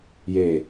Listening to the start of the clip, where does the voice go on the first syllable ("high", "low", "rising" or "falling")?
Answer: low